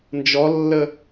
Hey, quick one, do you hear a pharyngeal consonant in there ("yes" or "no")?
no